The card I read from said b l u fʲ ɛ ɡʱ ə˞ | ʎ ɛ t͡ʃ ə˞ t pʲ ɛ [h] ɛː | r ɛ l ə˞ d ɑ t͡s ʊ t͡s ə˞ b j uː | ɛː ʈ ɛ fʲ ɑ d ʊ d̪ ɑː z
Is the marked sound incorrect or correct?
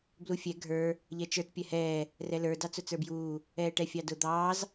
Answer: correct